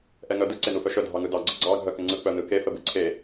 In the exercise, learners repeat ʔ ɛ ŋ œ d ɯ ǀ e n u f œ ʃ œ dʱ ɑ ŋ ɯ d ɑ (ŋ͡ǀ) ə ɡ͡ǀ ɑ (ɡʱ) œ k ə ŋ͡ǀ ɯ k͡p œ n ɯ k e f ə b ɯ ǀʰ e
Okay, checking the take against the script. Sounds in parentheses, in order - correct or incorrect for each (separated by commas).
incorrect, correct